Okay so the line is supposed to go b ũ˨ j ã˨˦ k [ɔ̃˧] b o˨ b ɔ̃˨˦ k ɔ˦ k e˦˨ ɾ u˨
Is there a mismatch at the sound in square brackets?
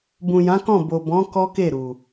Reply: yes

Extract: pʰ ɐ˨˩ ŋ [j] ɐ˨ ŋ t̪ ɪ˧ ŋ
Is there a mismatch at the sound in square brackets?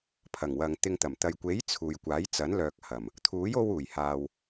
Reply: yes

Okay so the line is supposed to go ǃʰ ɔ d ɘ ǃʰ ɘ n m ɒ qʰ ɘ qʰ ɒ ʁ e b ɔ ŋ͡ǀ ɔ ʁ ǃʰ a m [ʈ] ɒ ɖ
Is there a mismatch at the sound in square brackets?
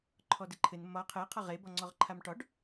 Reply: no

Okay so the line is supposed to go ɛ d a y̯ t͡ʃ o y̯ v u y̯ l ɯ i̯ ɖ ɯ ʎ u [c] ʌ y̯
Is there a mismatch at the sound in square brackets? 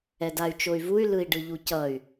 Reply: no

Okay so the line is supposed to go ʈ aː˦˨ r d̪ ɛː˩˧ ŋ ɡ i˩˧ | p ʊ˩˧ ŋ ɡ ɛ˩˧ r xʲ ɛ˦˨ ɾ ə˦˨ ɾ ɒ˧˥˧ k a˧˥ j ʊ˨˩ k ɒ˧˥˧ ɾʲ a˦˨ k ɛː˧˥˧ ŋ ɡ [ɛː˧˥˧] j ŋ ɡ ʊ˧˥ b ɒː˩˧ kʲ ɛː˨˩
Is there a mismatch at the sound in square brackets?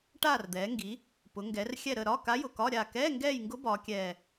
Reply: yes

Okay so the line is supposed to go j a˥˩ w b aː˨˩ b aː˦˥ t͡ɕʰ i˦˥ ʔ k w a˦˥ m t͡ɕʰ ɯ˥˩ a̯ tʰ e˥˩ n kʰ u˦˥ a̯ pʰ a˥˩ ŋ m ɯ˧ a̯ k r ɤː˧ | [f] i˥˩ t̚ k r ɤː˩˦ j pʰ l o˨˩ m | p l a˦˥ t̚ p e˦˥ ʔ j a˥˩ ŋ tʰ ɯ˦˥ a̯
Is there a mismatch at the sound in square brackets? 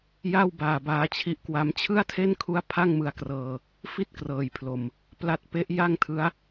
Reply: no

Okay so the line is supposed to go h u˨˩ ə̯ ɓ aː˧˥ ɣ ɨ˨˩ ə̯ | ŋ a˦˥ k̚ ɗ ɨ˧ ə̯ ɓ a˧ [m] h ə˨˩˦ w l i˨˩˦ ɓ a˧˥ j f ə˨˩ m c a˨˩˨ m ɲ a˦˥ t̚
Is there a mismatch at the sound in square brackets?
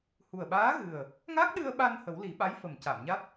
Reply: yes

